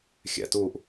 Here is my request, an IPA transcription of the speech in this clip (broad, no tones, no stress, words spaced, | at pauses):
xʲæ̰tuːʔ